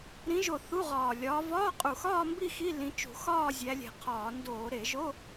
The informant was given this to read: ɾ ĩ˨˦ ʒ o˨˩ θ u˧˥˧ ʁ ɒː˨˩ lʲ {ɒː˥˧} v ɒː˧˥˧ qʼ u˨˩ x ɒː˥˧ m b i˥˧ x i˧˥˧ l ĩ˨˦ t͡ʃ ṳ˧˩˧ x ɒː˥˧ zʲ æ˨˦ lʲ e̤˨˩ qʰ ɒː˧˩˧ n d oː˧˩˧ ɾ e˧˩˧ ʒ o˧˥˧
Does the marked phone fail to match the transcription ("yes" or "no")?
yes